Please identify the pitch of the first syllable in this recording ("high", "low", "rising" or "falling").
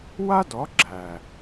high